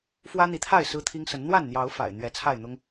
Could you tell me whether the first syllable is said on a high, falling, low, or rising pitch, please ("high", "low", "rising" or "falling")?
high